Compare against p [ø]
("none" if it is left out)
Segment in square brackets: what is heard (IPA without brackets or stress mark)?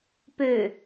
ø